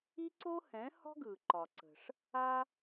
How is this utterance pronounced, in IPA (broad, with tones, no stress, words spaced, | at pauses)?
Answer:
i˥ǀo˥hɛ̃˩˥hɔ̤˥ ɡɯ˩ǃɒ˩ǀə̤˩ʂ | a˥